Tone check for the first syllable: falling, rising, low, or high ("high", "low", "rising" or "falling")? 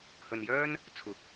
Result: low